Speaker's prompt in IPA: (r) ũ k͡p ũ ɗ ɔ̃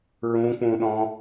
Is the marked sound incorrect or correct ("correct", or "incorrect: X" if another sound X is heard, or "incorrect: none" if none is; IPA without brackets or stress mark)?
incorrect: ɹ